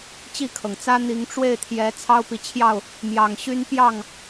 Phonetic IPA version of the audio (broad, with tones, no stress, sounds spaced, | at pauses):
t͡ɕ i˥˨ kʰ ɤ˩ ŋ t͡s ä˦ n̪ i˨˦ ŋ ʈ͡ʂ w e˥˨ ɪ̯ t̪ʰ j ɛ˨˦ t͡sʰ ɑ˦ ʊ̯ p i˨ t͡ɕʰ j ɑ˥˨ ʊ̯ | m j ɑ˨˩ ŋ ɕ y˦ n p j ɑ˥˨ ŋ